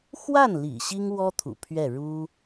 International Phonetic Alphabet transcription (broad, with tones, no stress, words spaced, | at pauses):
xwa˥˩nlḭ˨˩ ɕi˥ŋwɔ˥t̪ʰṵ˨˩ pʰɥɛ˥˩ ɻu˥